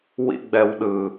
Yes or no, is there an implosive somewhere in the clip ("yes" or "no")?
yes